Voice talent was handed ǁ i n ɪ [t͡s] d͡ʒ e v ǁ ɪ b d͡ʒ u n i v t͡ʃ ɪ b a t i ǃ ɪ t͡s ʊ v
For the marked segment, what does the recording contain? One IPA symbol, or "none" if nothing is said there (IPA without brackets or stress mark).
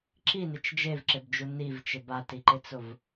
t͡ʃ